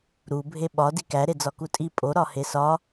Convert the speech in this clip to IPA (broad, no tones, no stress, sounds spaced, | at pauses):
ɾ u bʱ e ɓ ɒ d i k æ ɾ e d͡z ɒ k u tʼ i pʼ o ɾ ɒ h e s ɒ